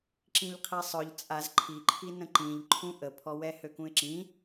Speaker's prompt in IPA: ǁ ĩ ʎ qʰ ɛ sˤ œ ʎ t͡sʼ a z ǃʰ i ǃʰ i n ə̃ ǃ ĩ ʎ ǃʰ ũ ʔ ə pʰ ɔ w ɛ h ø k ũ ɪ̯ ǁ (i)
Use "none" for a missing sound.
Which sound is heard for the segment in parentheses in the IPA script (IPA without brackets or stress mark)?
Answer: ĩ